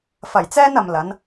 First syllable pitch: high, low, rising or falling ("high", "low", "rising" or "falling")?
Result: low